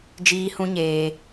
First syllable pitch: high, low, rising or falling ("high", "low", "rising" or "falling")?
high